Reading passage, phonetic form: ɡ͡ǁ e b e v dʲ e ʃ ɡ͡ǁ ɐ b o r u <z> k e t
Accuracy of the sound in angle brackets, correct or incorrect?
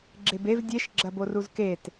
correct